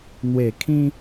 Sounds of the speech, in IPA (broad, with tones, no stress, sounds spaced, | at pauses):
n̪ w e˨˩ kʰ ĩ˧